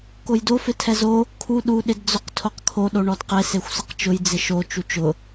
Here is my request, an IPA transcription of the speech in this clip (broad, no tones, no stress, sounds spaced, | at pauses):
k o j d o f ɪ tʰ ɛ z o | kʰ u ɗ u ɗ ɪ d d͡z ʊ q tʰ o q kʰ o ɗ o ɳ ɔ d q e s e xʷ s ɪ q t͡ʃ ʊ j d͡z ɪ ʃ o t͡ʃ u t͡ʃ ʊ